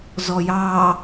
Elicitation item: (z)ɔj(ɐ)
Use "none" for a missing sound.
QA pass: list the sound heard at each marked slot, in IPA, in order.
z, ɑ

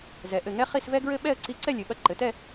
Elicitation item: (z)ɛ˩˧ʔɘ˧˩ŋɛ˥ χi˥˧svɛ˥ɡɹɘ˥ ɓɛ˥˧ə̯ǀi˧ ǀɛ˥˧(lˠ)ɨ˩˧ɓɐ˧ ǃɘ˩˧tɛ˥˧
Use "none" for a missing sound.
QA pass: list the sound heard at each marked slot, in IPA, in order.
z, lʲ

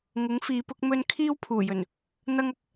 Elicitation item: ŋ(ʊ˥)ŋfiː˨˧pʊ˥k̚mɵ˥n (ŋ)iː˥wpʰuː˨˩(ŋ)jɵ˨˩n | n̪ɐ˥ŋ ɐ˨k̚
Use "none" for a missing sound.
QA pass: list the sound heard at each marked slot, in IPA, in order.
ʊ˨˥, kʰ, none

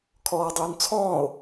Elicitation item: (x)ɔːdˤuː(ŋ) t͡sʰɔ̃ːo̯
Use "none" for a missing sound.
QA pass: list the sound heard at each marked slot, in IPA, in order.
kʰ, n

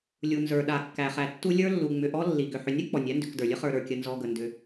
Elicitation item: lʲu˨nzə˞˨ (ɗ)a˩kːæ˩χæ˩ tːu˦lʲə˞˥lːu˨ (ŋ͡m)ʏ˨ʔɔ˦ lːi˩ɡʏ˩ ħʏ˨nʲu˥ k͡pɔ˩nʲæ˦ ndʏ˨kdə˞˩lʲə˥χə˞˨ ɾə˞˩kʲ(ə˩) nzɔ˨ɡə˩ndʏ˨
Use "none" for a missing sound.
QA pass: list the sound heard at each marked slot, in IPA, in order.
ɗ, ŋ͡m, ə˨

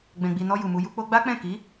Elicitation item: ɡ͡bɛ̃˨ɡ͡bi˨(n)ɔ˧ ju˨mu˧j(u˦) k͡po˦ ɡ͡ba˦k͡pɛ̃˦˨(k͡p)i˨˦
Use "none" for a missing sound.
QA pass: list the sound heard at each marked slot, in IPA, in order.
n, u˦, k

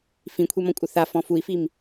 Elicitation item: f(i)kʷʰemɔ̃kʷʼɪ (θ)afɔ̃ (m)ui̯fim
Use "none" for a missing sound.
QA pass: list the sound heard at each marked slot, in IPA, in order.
ĩ, θ, f

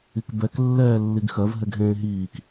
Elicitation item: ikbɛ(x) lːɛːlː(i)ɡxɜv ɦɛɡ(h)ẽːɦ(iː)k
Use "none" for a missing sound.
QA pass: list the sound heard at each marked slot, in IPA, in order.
k, i, ɦ, iː

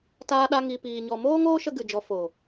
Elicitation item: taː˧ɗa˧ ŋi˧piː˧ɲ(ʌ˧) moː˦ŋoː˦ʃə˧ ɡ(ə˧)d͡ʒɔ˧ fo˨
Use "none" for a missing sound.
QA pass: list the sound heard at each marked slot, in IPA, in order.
ɔ˧, ɨ˧

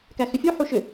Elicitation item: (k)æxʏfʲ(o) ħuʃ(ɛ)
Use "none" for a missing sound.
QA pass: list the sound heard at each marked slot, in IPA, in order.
k, u, ʏ

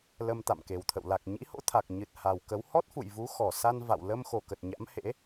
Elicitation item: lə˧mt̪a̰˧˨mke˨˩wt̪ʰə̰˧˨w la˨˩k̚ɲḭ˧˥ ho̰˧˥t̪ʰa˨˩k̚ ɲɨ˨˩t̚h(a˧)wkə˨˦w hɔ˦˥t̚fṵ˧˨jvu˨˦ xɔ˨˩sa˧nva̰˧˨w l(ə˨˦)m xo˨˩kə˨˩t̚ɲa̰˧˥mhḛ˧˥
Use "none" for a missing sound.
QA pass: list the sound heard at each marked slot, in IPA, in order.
a˨˩, ə˧

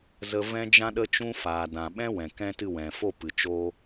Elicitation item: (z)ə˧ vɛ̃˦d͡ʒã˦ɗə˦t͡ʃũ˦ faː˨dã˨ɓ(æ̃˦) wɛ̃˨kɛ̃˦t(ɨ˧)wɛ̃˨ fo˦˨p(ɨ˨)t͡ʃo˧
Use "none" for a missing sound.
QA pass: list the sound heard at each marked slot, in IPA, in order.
z, ɛ̃˦, ɨ˦˨, ɨ˨

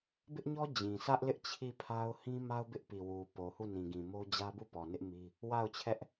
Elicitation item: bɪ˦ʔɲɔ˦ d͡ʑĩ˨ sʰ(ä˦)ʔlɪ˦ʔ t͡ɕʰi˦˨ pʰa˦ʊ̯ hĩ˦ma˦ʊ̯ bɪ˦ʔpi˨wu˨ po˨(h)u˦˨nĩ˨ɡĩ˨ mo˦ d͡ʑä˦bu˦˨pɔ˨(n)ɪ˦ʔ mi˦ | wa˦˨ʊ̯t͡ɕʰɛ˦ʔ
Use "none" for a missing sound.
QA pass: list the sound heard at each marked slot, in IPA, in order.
ä˦, h, n

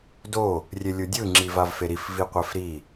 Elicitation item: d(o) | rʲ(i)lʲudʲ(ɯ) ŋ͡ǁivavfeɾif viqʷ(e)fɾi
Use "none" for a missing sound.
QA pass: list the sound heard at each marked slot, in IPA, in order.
o, e, ɯ, ɛ

